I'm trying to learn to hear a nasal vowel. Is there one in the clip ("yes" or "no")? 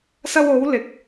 no